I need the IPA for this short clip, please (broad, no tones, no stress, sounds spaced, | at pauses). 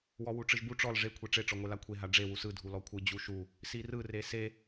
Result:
w ɔ w u ʈ͡ʂ ɯ ʒ b u ʈ͡ʂ ɔ l ʐ e kʷʰ e ʈ͡ʂ e ʈ͡ʂ ɔ ŋʷ e l a kʷʰ e ɦ a ɖ͡ʐ e w u s ɯ dʱ u l ɔ kʷʰ ɯ d͡ʑ u ʃ u | s i r ɯ r e s e